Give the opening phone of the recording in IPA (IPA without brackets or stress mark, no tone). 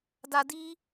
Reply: d